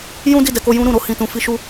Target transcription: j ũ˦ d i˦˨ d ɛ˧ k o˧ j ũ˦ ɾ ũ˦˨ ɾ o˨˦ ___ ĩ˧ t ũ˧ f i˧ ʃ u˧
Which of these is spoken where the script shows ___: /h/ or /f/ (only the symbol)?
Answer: h